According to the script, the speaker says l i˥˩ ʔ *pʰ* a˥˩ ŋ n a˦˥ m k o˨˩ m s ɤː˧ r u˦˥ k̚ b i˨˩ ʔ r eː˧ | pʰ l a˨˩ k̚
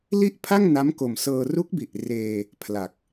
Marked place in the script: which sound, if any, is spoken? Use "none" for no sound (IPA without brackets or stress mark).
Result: pʰ